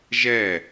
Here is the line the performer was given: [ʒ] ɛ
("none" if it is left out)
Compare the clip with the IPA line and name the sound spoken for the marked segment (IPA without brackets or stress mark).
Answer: ʒ